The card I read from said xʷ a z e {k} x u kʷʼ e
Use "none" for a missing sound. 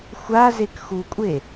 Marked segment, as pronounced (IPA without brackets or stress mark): k